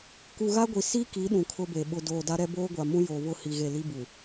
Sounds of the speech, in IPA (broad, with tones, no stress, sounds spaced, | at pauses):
k u˨ ɣ a˦ ɡʷ i˨ s i˦ k i˨˦ ɗ ũ˨ kʰ ʊ˦ b e˨ ɓ ʊ˨ d oː˨ d a˦ ɾ ɛ˦ b oː˦ ɡʷ a˨ m ũ˦ j oː˨ β ʊ˦˨ h i˨ ɣ e˦˨ l i˦ b u˨